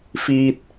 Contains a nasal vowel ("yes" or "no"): no